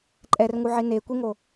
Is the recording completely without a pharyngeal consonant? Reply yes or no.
no